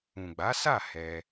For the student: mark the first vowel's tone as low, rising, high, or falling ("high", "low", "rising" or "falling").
low